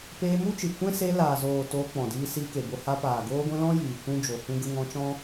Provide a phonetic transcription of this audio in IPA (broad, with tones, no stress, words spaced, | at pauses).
peː˧mu˦t͡ʃɨ˨ kʷɛ̃˦se˧laː˨zoː˨ toː˧k͡pɔ̃˨diː˧ siː˧ke˨bo˧ ha˧paː˨ ɡoː˦ɡʷɛ̃˦ lɔ̃˦jiː˨ kʷũ˦d͡ʒo˨hũ˦ɡə˦ ŋɔ̃˧t͡ʃɔ̃˦